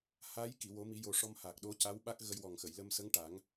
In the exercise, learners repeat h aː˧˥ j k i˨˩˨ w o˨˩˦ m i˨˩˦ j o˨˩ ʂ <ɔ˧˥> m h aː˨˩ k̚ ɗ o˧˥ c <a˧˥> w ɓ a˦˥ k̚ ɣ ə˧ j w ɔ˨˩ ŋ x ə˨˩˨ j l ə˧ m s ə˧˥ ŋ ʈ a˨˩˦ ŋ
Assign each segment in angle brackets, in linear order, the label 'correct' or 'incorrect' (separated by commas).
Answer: incorrect, correct